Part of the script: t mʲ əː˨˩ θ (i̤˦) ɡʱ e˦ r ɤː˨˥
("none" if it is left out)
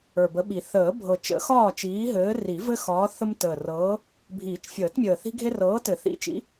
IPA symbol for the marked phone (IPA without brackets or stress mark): i̤˦